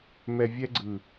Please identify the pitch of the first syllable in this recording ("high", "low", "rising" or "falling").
low